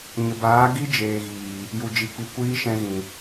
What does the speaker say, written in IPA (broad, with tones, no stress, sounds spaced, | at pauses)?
ɲ ə˨ b aː˨˦ ɡ i˦ d͡ʒ eː˨ ɣ iː˨ | j u˨ d͡ʒ i˨ k͡p i˨ kʷ iː˦ ʃ ɛ̃˧ ɣ ĩ˨